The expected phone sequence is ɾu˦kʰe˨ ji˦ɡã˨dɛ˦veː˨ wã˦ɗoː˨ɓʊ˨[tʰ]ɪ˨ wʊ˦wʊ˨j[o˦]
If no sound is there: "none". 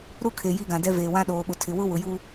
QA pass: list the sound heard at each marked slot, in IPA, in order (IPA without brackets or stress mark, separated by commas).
tʰ, u˦